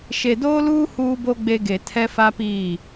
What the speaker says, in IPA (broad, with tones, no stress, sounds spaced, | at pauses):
ʃ e˨ d oː˦ l uː˦ h uː˦ b o˦ ɡ͡b e˦ ɡ e˨ tʰ ɛ˦ f a˦ p iː˦˨